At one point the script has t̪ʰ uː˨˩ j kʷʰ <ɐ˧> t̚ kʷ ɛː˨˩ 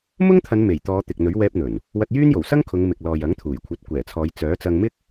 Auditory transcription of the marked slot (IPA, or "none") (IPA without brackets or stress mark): ɐ˨˥